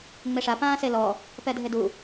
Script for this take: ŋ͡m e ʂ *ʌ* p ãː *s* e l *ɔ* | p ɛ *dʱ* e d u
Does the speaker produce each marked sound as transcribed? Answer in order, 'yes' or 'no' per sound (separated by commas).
no, yes, yes, yes